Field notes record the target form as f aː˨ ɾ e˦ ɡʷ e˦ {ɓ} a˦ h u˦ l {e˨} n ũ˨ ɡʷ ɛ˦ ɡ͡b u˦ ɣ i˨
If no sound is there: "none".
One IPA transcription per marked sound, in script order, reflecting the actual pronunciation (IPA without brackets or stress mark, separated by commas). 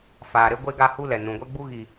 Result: ɡ, ɛ˨